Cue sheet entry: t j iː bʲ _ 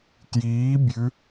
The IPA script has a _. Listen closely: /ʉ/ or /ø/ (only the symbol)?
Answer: ʉ